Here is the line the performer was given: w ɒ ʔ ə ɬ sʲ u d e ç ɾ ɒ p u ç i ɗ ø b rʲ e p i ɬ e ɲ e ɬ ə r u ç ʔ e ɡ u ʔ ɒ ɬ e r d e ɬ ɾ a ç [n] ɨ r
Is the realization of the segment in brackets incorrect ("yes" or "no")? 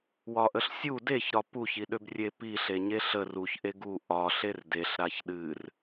yes